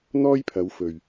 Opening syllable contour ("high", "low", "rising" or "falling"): high